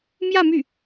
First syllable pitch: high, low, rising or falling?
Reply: falling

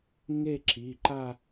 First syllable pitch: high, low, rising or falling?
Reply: falling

